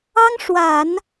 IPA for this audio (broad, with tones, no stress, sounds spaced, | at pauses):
ɑ˥ ŋ ʂ w a˨˩˦ n